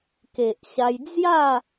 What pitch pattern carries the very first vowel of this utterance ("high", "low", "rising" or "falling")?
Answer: low